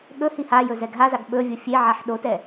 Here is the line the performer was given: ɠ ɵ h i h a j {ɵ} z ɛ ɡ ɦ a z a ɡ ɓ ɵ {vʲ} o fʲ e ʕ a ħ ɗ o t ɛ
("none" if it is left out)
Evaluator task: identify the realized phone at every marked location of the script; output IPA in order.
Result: ɵ, vʲ

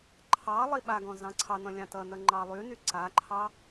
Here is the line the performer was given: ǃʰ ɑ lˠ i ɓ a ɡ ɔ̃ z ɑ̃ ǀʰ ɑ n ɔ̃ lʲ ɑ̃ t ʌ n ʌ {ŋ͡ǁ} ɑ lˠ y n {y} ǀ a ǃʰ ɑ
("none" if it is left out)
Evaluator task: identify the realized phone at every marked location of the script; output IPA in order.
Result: ŋ͡ǃ, y

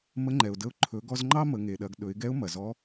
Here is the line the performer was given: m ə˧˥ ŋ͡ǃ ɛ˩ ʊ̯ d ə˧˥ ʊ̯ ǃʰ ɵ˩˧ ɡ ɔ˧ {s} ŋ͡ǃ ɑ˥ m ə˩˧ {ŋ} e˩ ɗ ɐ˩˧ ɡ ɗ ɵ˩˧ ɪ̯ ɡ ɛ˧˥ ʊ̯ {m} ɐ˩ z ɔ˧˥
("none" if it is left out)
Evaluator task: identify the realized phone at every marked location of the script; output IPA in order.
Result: z, ŋ, m

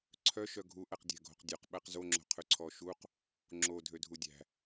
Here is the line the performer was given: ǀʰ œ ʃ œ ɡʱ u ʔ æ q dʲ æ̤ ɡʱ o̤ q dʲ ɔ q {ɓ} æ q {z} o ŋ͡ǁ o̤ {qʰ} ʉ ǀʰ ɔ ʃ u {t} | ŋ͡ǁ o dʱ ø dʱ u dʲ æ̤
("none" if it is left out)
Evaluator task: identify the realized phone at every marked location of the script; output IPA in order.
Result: ɓ, z, qʰ, q

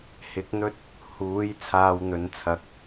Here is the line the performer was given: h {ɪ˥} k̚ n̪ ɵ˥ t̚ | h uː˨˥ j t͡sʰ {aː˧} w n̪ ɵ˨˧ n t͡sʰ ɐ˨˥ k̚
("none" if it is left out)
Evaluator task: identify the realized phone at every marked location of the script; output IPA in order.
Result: ɪ˨˥, aː˧

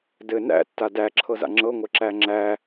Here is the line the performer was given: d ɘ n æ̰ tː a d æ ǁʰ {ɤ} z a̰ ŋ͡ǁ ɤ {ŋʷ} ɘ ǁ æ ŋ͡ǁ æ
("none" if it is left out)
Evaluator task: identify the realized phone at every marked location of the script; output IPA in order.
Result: ɤ, ŋʷ

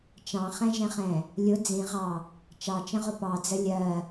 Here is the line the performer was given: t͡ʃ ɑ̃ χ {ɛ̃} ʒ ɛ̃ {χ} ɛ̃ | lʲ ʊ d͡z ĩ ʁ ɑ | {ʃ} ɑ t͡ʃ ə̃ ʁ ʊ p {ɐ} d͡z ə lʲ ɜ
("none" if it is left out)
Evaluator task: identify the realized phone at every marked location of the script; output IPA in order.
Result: ɛ̃, χ, t͡ʃ, ɑ

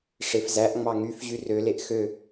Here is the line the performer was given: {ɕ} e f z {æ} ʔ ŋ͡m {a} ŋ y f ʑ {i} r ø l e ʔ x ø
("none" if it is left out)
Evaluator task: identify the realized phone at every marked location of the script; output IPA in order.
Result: ʂ, æ, ɑ, y

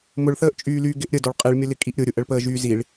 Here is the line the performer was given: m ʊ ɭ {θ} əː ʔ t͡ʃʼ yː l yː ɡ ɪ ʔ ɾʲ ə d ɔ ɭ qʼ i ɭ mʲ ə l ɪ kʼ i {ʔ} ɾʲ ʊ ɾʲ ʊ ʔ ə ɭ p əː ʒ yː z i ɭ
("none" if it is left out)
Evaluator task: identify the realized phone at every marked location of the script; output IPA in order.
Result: θ, ʔ

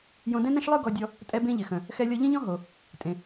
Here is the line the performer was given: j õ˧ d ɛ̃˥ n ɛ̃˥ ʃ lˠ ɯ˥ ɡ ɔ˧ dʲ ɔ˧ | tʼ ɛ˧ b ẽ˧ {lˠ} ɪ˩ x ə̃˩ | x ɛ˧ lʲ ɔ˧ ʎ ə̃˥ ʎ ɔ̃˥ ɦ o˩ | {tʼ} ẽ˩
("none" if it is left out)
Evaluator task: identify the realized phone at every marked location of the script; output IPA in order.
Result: ʎ, tʼ

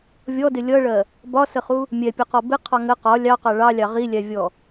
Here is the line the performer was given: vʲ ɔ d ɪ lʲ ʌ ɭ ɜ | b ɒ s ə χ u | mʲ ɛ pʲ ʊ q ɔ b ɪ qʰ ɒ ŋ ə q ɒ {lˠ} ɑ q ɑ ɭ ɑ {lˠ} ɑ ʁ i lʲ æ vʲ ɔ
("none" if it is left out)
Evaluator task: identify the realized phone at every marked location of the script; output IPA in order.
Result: lʲ, lʲ

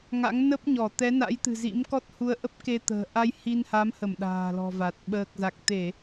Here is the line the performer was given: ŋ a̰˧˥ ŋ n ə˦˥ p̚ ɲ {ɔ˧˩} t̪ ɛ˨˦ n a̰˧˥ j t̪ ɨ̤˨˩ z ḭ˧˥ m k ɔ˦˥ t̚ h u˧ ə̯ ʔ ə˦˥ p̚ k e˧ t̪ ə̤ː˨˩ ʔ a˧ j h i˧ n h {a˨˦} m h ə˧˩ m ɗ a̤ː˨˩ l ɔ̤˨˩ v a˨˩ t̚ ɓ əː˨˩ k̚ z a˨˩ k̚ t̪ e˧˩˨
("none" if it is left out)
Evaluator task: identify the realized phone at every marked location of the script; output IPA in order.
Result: ɔ˧˩, a˨˦

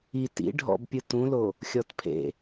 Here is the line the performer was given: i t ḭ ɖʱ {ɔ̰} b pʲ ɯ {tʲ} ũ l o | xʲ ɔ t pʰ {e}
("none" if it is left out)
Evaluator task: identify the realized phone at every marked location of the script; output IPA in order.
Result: ɔ̰, t, ḛ

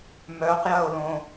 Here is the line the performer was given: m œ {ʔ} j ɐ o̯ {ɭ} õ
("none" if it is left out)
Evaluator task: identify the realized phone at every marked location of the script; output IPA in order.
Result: q, l

